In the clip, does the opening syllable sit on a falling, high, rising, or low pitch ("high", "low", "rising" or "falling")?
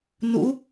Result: rising